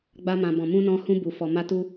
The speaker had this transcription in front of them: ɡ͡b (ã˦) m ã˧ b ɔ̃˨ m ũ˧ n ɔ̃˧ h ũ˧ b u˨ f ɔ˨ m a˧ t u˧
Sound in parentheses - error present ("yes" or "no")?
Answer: yes